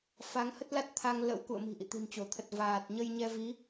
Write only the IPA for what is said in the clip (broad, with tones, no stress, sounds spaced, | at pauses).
f a˨˦ ŋ h ə˦˥ t̚ l a˦˥ t̚ t̪ʰ a˧ ŋ l ə̰˧˥ w k ṵ˧˨ ə̯ m i̤˨˩ ʔ ḭ˧˨ t̪ i̤˨˩ n t͡ɕ o˧˩ t̪ʰ ə˨˩ t̚ v aː˨˩ t̚ ɲ ə˧ j ɲ ɛ˧ v i˨˦